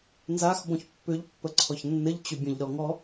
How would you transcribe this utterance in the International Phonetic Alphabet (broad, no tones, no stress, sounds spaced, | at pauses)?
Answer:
n z a x b ɔ̃ ç pː ʏ ʎ pː ə ǀʰ ɔ ç nː ɘ ʎ t͡ɕ ʏ bʲ ə̃ ʎ ɾ ɔ ŋ ɔ